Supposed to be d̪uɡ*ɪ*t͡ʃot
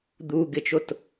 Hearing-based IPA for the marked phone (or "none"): ɪ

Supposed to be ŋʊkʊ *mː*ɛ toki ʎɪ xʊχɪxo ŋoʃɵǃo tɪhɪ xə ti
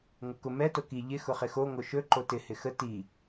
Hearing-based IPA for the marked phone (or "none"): m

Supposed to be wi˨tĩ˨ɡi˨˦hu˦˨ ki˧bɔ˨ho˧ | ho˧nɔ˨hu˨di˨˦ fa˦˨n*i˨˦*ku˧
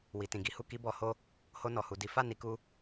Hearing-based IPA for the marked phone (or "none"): i˨˦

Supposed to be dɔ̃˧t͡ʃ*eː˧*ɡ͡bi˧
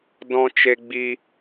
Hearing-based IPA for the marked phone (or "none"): e˧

